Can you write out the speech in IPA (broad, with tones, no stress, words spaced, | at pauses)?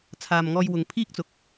t͡sʰaː˨mŋɔː˧jwʊ˨ŋ pʰiː˥k̚t͡sʊ˨k̚